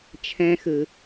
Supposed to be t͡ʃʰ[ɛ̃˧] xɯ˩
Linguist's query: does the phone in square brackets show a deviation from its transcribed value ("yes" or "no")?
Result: no